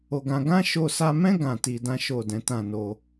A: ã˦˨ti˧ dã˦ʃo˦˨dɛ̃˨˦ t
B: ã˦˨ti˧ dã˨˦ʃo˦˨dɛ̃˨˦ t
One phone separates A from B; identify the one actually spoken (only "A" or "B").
A